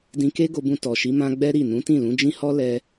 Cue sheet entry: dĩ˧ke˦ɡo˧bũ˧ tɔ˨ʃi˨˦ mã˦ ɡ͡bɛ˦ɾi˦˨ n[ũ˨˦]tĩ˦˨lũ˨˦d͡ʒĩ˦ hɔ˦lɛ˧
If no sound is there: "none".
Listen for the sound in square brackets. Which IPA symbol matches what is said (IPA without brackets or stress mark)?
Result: ũ˨˦